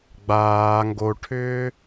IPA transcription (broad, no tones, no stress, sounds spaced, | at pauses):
ɡ͡b aː ŋ ɡ o ʈʰ ʏː